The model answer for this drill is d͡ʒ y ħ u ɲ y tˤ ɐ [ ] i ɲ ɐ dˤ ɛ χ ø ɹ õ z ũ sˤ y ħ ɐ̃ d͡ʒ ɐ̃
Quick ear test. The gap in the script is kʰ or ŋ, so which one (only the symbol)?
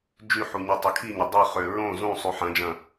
kʰ